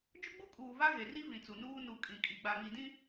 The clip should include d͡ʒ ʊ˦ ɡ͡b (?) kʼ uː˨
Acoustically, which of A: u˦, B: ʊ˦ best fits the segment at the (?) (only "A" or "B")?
A